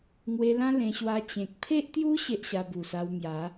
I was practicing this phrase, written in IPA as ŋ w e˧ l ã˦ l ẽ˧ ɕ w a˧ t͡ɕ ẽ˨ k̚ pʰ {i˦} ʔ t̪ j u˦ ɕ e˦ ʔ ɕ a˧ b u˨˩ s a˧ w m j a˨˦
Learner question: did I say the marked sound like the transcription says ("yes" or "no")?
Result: no